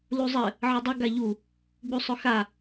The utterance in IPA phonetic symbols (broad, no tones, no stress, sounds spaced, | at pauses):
l u zˤ ɘ | ʕ ə dˤ ʊ ɡ a ʎ u | ɡ͡b u sˤ ʊ x a